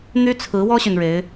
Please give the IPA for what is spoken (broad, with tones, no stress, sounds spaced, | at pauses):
n̪ y˥ t͡sʰ ɹ̩˧˥ w ɔ˥ ɕ y˨ n ɻ e˧˥ ɪ̯